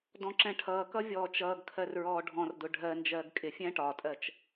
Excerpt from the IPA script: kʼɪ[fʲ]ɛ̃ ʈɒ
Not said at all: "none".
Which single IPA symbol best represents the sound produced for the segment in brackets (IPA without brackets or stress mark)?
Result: fʲ